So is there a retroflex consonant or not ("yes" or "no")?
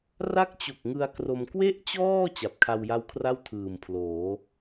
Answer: no